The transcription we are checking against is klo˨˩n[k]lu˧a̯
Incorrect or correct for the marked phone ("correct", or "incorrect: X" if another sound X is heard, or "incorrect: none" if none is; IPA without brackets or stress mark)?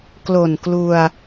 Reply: correct